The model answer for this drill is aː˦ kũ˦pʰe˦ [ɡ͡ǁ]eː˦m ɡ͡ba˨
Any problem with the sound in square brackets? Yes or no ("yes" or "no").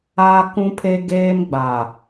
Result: yes